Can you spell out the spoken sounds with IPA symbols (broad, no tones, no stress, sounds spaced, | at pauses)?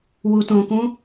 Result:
w u t õ k ũ